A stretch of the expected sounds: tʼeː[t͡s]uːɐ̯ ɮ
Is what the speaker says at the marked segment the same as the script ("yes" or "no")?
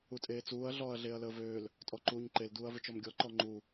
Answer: yes